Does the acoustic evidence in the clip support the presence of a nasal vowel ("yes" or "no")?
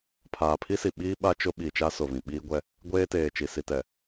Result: yes